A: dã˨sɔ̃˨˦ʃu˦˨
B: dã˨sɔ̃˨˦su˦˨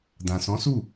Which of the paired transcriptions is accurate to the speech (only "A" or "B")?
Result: B